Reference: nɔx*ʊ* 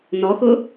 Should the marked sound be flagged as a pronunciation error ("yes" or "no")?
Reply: no